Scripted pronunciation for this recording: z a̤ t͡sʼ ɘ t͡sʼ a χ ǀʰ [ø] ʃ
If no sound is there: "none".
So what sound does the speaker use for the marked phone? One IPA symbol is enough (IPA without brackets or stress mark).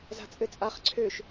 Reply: ø